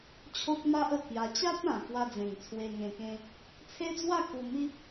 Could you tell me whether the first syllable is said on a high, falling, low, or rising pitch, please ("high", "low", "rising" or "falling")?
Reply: high